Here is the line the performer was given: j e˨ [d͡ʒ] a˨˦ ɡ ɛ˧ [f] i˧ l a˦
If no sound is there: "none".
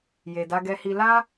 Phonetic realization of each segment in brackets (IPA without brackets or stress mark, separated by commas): d, h